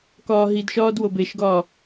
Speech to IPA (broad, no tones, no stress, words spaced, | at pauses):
kɒːɦidʃɒːd wobeʃɡɒː